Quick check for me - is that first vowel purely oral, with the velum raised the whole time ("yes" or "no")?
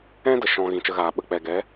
no